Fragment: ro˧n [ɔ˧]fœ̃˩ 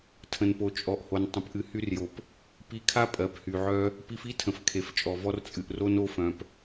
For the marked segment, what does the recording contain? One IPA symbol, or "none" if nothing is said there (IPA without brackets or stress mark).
o˧